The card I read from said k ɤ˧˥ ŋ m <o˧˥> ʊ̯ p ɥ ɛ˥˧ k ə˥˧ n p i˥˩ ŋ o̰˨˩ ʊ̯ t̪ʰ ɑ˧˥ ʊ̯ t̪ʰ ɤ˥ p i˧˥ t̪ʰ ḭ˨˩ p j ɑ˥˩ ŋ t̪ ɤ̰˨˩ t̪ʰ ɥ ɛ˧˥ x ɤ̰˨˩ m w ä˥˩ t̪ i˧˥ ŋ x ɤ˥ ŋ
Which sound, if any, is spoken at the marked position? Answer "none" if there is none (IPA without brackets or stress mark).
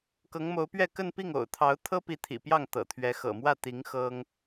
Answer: o˧˥